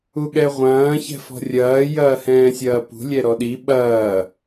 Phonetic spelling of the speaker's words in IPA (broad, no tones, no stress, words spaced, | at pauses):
uɠɛʁʷɐ̃ː çɛ̤fɔ̤rʲɐː jɐːhɛ̃ːsʲɐːpṳ lʲɛɾɔɗi ɓɐː